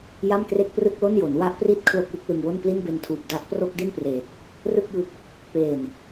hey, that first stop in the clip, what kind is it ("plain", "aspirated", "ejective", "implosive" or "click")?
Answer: plain